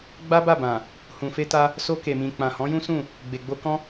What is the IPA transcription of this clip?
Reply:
ɡ͡b a˦ b a˦˨ b ã˨ | h ũ˨ f e˧ t a˧ | s o˧ k e˨ m ĩ˨ k͡p ã˨ h ɔ̃˨˦ j ũ˦ s ũ˦˨ | ɡ͡b e˨ ɡ͡b o˧ k ɔ̃˦

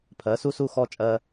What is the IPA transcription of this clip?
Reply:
pʰ ɜ˨˦ s u˦ s u˦ x ɔ˦ t͡ʃʼ ɜ˦

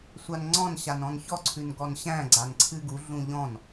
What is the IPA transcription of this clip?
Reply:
sʷ a n ŋ͡ǀ ɔ̃ n ɕ a n ɔ̃ n ç ɔ ǀʰ ʉ n ɡ ɔ n ɕ æ̃ ɡ͡ǀ a n ǀʰ ɨ ɡ u ɮ ũ ʎ ɔ̃ n

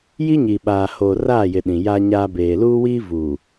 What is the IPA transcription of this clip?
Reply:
j i˦ ɲ i˨ ɓ aː˨ h oː˨ r aː˦˨ j ɪ˨ ɗ ĩ˨ j a˦ ɲ aː˦ b eː˨ l uː˦ w iː˦ v uː˨

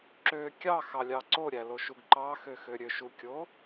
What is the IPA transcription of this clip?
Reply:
ǁ ø kʲ ɑ x ɑ lʲ ɑ ǀ o ɾʲ æ l o ʃ u ɡ ǃ ɑ x ø x ø ɾʲ ø ʃ u kʲ o

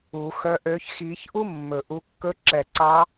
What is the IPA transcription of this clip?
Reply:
u˨˩˦ x œ˧˥ ʔ ø˧˥ ç x i˨˩˦ ç ʔ u˥ mː ɵ˨˩ ʔ u˧˥ kː ɵ˧˥ ǁ ɛ˨˩ ǀ ɑ˧˥

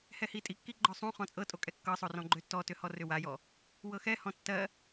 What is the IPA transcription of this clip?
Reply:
h ɛ h i tʼ i kː i ɡ͡ǃ ɔ sˤ ũ χ ɔ̃ t͡sʼ ɤ tʼ o kʼ ɛ kː ɤ sˤ o r ɔ̃ ɡ͡ǃ ø tː ɔ t ʏ h ɔ r ʏ w a j ɔ | w ɤ x ɛ h ɔ̃ tː ɜ

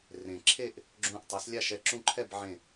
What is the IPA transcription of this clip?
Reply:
r ẽ˩ ǁʰ e˥˨ ʔ | ɡ͡ǁ ũ˧˩ ʔ tˤ e˩˥ s lʲ a˥˨ ʃ ɛ˥˨ ǁ ũ˥˨ ǃʰ ɛ˥˨ b ʕ ẽ˧˩

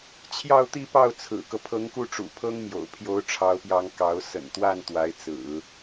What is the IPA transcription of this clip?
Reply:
t͡ɕʰ j ɑ˥˧ ʊ̯ t̪ i˥˧ p ɑ˥˩ ʊ̯ t͡sʰ ɹ̩˨˩ k ɤ˦ pʰ ɤ˧˥ ŋ k u˥˩ ʈ͡ʂ ṵ˨˩ pʰ ɤ˥ ŋ m j o̰˨˩ ʊ̯ pʰ j o˧˥ ʊ̯ ʈ͡ʂʰ ɑ˧˥ ʊ̯ p j ɑ˧˥ ŋ k ɑ˧˥ ʊ̯ s ə̰˨˩ n t̪ w a˥˩ n t̪ w a˧˥ ɪ̯ t͡s ɹ̩˨˩˦

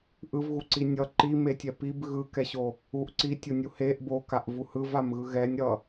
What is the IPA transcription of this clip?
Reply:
ʔ ɯ v ɣ u ǀ i nʲ ʌ ǃ i m e tʲ ɛ p i b ɣ ɯ k ɛ ɕ o | u ʔ ǀ i tʲ o nʲ u h e ʔ b o k a ʔ v u h ɯ v a m ɣ ɯ ɣ ɛ nʲ ɾ ʌ

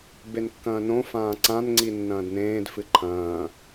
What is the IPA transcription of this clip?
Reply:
b e n kː ɐ̃ː n õ f ãː ǀ ã n ŋ͡ǀ i nː ɐ̃ː d n ẽː d f ɨ ǃʰ ɐ̃ː

